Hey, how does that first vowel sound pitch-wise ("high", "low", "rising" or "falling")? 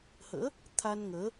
rising